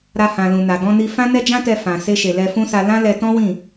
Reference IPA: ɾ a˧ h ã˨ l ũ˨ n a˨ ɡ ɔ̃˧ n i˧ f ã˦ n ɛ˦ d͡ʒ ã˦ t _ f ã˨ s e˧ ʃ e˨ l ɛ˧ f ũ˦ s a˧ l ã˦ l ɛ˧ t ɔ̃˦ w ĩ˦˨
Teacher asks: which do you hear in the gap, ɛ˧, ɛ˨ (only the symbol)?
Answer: ɛ˧